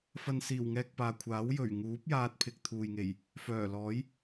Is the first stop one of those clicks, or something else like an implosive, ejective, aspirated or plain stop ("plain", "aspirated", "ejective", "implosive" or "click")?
plain